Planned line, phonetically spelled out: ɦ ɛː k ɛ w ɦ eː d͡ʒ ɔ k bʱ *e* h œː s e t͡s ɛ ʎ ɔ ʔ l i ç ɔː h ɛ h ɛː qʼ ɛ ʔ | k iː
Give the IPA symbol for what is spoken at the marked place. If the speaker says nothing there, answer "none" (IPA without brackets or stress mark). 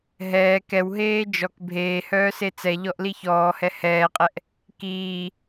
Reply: eː